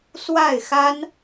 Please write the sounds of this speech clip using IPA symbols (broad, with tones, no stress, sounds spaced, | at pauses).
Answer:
s w a˥˩ ɪ̯ x a˥ n